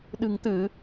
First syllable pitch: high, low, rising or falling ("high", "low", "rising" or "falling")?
low